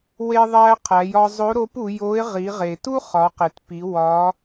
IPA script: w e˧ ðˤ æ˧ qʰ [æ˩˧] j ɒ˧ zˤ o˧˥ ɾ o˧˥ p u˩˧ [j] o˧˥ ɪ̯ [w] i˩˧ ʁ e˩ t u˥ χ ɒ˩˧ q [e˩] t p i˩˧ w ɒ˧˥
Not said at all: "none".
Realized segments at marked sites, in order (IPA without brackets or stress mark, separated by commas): æ˩˧, j, ʁ, e˩